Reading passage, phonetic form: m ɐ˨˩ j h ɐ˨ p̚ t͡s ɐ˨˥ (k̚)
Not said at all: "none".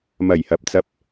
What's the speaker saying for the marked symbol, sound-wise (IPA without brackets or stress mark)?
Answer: p̚